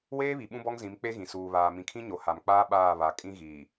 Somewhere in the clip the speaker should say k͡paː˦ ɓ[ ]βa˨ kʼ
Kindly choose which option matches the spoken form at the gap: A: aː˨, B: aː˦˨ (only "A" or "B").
B